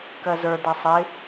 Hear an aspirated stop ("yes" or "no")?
no